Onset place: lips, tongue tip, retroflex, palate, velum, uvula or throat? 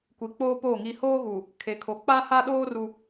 velum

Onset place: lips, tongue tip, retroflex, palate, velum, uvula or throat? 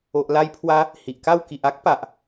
throat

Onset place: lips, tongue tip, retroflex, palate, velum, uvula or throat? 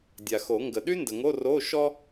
tongue tip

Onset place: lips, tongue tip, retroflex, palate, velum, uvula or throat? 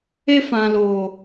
lips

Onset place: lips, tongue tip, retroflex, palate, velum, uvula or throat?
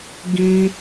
velum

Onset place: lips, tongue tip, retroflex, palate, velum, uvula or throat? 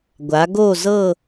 velum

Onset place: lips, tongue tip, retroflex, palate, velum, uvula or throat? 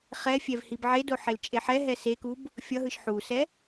uvula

